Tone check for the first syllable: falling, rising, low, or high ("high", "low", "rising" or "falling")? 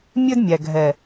high